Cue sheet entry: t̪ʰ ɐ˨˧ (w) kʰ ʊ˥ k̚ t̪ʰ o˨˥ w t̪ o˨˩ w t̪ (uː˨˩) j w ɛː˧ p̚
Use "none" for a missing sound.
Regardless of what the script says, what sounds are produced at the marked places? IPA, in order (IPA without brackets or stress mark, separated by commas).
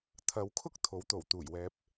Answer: w, uː˨˩